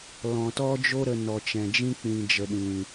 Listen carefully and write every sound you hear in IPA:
lɔ̃˨tɔ˦d͡ʒo˦ ɾə˧nɔ˨t͡ʃɛ̃˨d͡ʒĩ˦ k͡pĩ˨d͡ʒə˨ɗĩ˨

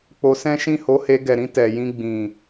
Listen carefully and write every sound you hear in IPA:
k͡po˧sɛ̃˦ ʃĩ˦˨ ho˨˦he˧ ɡɛ˨ɾĩ˧ tɛ˨jĩ˧ɡ͡bĩ˨

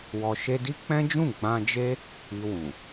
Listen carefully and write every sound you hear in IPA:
wɔ˨ ʃe˧di˦k͡pɛ̃˦d͡ʒũ˦˨ ɡ͡bã˧d͡ʒe˦ | i˧wũ˨

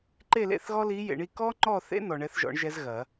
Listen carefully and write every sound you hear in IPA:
ǃe˥˨lḛ˥˨θɣɔ˥ li˧˥jḛ˨ɳi˥˨ kɔ˥ŋ͡ǃɔ˥˨θḛ˥ nɔ˨ɳɛ˧˥θʒɔ̰˨˩˦ɳʒɛ˧˥z ɣɐ˨˩˦

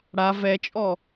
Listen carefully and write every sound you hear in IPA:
ɽa vɛt͡ʃʼɔ

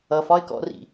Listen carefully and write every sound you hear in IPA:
ʌfɒɪ̯kɔ̰rḭ

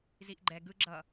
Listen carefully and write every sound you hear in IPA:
ziʔɡ͡ǃɛ ɡɯɡ͡ǁʌ

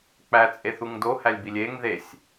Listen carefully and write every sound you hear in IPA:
k͡pæt͡sʼe θuŋdohælʲbilʲ eŋ ðesʲ

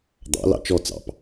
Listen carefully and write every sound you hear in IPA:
d̪ɑ̰ lɑ̰t͡ʃɔ t͡sɑ̰p

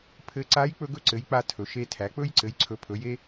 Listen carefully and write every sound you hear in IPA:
pʰɘ˧˥ ǀa˧˥j k͡pɵ˥ɡɵ˥ ǀɘ˩˥j k͡pa˥tʰɵ˩˥ʃe˥tʰæ˩˥ k͡pɵ˥jǀɘ˩˥jǀʰɵ˩˥ pʰɵ˩˥je˥

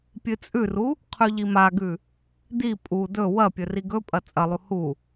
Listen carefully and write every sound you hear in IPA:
pʲɨt͡sʼʉru | qʰʉʎimaɡʉ | di pʼu dɵ wɐ pʲɵriɡɵpʼɐ t͡sʼɐlˠu hu

